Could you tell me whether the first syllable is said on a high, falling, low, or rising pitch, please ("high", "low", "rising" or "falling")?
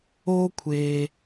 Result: high